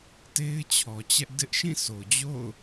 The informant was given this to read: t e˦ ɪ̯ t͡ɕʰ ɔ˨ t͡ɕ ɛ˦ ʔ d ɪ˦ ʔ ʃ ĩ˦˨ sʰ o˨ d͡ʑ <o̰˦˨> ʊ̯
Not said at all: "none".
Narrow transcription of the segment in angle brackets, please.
o̰˦˨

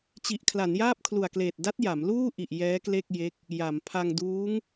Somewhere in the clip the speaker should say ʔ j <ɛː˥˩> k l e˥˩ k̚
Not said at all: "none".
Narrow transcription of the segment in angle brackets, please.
ɛː˦˥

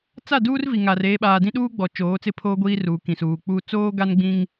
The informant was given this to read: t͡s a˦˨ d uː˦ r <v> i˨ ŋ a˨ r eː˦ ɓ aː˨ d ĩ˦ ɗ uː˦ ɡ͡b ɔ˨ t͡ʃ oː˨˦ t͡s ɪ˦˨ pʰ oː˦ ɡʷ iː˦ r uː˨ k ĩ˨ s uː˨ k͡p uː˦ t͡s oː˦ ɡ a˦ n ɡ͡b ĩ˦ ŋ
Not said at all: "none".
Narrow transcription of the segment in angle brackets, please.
v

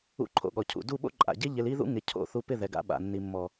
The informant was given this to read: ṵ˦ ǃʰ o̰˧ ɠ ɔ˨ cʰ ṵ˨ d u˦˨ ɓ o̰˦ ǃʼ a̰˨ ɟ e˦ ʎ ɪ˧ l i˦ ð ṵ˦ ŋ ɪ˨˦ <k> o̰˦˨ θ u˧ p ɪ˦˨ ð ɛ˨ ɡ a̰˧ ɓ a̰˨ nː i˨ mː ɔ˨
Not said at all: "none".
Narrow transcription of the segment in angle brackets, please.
cʰ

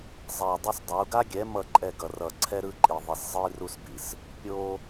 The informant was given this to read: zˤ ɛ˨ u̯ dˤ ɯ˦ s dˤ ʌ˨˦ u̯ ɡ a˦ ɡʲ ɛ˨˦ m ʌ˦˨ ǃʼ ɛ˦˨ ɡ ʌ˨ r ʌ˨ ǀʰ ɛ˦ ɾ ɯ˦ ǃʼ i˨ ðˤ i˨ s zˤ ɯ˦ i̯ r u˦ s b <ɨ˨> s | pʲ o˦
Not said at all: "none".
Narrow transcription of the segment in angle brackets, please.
i˨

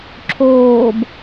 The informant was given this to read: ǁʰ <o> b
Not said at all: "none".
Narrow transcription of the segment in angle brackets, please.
oː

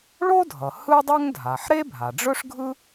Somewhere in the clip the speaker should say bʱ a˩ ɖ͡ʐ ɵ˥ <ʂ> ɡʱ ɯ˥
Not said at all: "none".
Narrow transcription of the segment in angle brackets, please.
ʂ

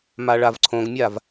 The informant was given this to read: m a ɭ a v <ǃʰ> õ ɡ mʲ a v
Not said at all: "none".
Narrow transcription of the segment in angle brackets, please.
ǀʰ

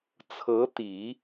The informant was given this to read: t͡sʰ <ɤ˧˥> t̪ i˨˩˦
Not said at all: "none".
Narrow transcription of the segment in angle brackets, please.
ɤ˧˥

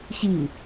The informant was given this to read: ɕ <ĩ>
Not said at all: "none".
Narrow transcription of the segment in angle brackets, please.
i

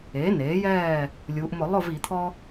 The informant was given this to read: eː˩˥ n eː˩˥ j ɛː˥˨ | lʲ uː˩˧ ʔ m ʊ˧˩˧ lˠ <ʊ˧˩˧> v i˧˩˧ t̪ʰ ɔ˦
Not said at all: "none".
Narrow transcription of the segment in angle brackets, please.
ʊ˥˨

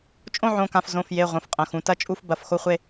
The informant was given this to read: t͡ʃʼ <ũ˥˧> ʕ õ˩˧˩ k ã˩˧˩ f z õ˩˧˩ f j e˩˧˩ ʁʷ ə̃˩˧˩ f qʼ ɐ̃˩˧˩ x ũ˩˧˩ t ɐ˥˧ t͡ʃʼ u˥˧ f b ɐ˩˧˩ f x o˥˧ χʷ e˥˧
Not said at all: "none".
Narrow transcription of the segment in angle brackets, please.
õ˥˧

